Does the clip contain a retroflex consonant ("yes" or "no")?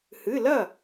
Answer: no